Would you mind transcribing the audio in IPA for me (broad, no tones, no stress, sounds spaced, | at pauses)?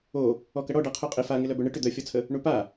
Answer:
o | ɔ k ɐ ɽ ɔ ɖ a qʰ œ qʼ ɪ f a ŋ ɪ l œ b œ ɳ ɪ ʈ ʏ d̪ œ fʲ ɔ t͡sʰ ə | ɳ u p a